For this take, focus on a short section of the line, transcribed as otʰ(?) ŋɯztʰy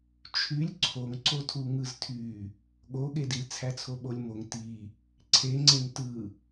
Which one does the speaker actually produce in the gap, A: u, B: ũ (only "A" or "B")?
A